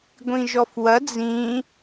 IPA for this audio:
ɡʷ ĩ ʒ ɔ f w ɐ d͡z ĩ

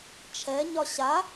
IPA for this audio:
t͡ʃʰ ɛ ɲ ɒ ɕ a

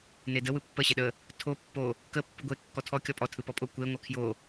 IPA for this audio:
n e d ə w ɯ pː ə ɕ e ɗ ə | tʰ o pː o | k ə pː ɯ ɡʷ e kː ɔ tʰ ɔ kʲ ɔ pʼ ɔ tʰ ɯ p ɔ pʼ o kʷ e ŋʷ a kʰ j o

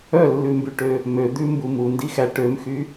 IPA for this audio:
œ lː ʉ m b y ʈ ø | m ø d̪ ʉ m b u m u n d i x æ ʈ ø m x y

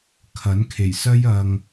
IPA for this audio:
kʰ ɐ˨˥ n kʰ e˨˩ j s ɐ˥ j ɐ˧ ŋ

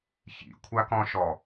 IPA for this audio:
ç ḭ kʷʰ a k ɔ̃ ʃ ɔ

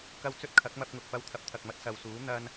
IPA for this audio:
k ɐ˧ w t͡s ɵ˧ t̚ kʰ ɐ˨˥ k̚ m ɐ˧ p̚ ŋ ʊ˨ k̚ p ɐ˧ w t̪ʰ ɐ˨˥ p̚ t̪ʰ ɐ˨ k̚ m ɐ˧ t̚ s ɐ˨ w s uː˨˥ n̪ ɐ˥ n

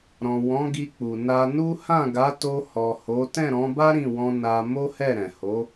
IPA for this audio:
ɾ ɔ̃˨ w ɔ̃˨˦ ɡ i˧ k͡p u˨ n a˧ n u˦ h ã˦˨ ɡ a˨˦ t o˧ h ɔ˨ h o˨˦ t ɛ̃˦˨ ɾ ɔ̃˨˦ b a˦ ɾ ĩ˦˨ w ɔ̃˧ n a˧ m o˦ h ɛ˦˨ ɾ ɛ̃˨ h o˨˦

